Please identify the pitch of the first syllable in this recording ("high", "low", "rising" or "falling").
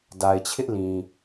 low